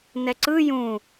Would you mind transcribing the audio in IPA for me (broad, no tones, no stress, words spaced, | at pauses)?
nɛǀɯ jũ